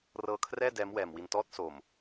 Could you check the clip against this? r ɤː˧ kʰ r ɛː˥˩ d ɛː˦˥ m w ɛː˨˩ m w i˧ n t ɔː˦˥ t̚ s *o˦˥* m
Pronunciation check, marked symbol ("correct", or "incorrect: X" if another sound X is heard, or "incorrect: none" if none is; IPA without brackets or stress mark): incorrect: o˨˩